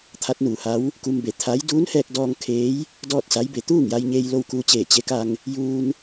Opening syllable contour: rising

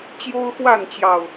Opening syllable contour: high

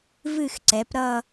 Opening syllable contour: falling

